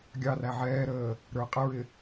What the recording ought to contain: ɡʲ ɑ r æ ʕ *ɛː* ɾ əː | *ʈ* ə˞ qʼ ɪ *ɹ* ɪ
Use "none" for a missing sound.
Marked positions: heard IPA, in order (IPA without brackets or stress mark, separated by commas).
ɛː, ɾ, ɹ